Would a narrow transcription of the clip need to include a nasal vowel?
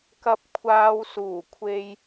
no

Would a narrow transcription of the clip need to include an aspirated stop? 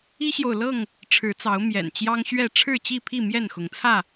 yes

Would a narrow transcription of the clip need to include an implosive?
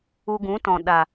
yes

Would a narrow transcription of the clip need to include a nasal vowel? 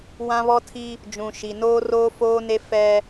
yes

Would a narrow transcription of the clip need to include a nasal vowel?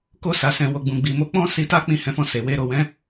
yes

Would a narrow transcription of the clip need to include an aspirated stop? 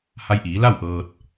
no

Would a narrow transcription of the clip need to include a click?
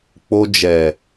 no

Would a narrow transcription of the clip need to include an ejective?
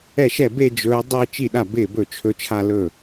no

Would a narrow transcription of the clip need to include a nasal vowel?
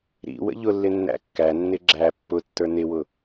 no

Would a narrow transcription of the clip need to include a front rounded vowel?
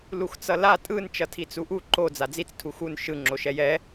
no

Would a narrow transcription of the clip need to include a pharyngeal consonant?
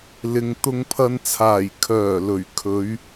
no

